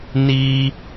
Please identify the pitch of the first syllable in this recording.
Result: high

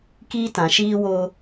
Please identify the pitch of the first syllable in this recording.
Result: high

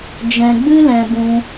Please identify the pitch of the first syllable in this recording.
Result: low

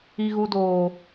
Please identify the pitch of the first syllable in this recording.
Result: high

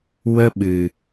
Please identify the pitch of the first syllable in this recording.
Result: high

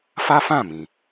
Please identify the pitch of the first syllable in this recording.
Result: high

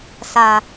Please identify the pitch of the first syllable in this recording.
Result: low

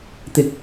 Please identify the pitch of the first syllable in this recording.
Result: high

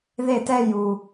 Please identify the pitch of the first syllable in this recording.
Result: falling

